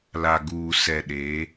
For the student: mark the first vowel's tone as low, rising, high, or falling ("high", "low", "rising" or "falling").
low